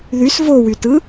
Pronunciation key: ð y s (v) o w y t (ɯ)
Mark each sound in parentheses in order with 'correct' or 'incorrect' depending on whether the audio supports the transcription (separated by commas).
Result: correct, correct